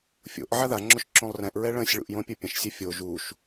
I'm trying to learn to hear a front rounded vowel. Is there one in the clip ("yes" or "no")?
no